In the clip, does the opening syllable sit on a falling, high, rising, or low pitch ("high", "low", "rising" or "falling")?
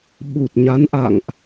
low